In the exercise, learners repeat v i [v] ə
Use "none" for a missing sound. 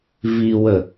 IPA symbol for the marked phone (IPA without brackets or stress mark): w